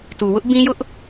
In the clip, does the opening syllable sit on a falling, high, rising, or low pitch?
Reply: low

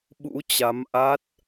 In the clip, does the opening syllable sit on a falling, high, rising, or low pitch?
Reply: rising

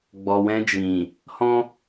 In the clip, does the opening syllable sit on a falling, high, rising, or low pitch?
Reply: low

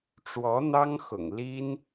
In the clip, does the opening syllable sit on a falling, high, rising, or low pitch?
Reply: rising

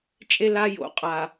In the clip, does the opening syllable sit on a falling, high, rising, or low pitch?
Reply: high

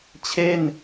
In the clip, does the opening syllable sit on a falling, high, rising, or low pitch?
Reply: falling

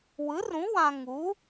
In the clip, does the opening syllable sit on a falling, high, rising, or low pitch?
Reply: rising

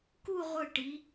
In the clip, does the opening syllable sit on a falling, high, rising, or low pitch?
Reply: falling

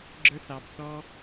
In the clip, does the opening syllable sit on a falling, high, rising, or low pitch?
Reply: high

